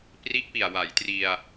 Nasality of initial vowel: oral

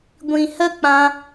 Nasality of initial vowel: nasal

